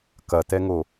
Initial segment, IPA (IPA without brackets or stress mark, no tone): k